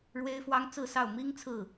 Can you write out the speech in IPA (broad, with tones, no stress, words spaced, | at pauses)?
ɻwe˥ɪ̯fwɑ˥ŋt͡sɹ̩˥˧ sɑ˥˩ʊ̯ mi˥ŋ t͡sʰɹ̩˥˩